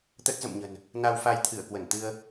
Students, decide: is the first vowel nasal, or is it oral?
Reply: oral